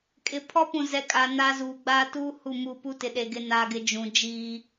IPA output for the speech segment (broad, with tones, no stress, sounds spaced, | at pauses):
kʼ ɪ˨ pʰ ɔ˦ p ũ˨ z ɛ˨˦ kʼ a˨ n a˦ z uː˨ ɡ͡b aː˦ t uː˦ h u˦˨ m u˦˨ p u˦ t ɪ˨ ɗ e˨ ɡ ɪ˦ n aː˦ ɡ ɪ˦ d͡ʒ ũ˨ d͡ʒ iː˦